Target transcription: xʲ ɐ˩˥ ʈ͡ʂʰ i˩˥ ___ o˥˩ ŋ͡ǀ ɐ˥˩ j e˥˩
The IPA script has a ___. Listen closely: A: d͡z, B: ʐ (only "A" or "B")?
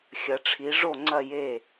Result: B